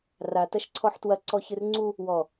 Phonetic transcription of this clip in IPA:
ra tɐʃǀʰɔħtwɐ ǀɔçɨrŋ͡ǀu | wɔ

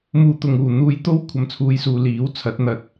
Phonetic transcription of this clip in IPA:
muː˨ t̪ʊ˨ŋuː˨˩ n̪uː˧jt̪o˥w kʷʰɐ˨mt͡sʰuː˨˧jsuː˨ liː˨˥w t͡sʰɐ˨˥t̚n̪ɐ˧t̚

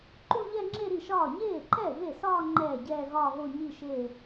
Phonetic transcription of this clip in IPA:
ǃu˥˧ʎɛ˥˧ ŋ͡ǁe˥˧ɾi˥˩ʃɒː˥˩ ɲeː˥˩ǃɛ˥˩ ɣe˥˩sɒː˥˧ ŋ͡ǃɛː˥˩ɟɛː˥˧ ɣɒː˥˧ɣo˥˧ ɲi˥˧ʃeː˥˧

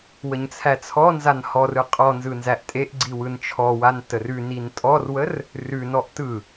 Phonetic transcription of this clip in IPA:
wəɲt͡sʰæt͡sʰɔnzan hɔrɯ qʼɔ nzɯnzæʔtʼeʔɡ͡ǀi wɯnt͡ʃʰɔwan tərʉnin tʼɔrwər | rʉnɔʔ tɯ

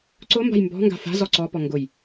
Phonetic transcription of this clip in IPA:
ǀʊmba̤j mbɔ̤ŋɡa̤ fa̤zɔ ǀɔpɔ ŋɡʊj

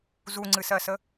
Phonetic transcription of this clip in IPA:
zuŋ͡ǀɨsɜsə

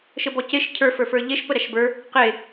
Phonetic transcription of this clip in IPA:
ʃəbɔceʃ cʰə˞ fə˞fə˞ʎeʃ pəɾæʃbə˞ | qe

